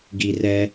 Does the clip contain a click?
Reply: no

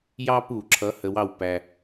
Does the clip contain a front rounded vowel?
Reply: no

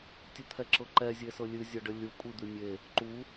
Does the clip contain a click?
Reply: yes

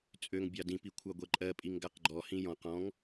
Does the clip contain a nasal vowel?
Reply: yes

